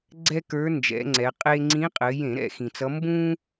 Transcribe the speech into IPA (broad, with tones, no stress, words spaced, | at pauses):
ɡ͡ǀɛ˥kə˞˧˥nd͡ʒɛ̰˩˧ŋ͡ǀɛ˩˧ qʼe˥ ŋ͡ǀĩ˧˥qʼɘ˩˧jẽ˧˩˧ ɾɛ̰˧˩˧xĩ˩t͡sʌ˧˥ mbũ˥